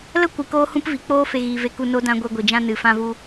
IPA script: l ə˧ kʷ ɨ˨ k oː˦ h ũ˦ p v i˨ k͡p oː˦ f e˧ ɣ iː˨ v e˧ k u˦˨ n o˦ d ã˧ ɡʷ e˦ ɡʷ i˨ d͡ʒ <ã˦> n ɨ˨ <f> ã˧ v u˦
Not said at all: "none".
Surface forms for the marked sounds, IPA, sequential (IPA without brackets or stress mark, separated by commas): ã˦, f